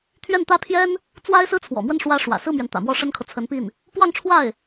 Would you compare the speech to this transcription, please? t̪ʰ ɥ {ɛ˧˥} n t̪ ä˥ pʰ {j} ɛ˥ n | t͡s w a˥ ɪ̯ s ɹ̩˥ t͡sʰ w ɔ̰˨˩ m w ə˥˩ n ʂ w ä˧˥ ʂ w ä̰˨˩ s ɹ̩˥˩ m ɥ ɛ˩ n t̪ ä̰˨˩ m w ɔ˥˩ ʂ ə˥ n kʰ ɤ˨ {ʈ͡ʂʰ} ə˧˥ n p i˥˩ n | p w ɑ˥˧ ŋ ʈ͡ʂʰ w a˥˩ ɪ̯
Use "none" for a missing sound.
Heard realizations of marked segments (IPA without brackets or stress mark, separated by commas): ɛ˥˩, j, t͡sʰ